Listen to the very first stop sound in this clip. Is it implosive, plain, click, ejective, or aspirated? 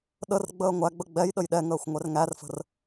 implosive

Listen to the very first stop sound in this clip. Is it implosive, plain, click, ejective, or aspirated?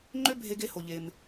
click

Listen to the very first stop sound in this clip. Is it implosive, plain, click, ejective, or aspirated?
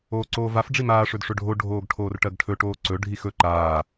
click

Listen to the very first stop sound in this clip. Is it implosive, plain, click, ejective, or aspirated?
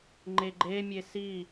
click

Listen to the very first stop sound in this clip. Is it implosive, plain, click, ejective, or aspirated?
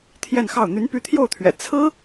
aspirated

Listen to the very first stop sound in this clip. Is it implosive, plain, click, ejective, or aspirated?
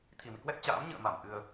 aspirated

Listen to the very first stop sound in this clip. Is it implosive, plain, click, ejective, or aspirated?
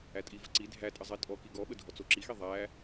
ejective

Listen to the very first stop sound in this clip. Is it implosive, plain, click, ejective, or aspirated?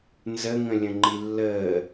click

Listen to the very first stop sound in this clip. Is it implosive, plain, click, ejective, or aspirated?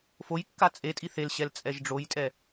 plain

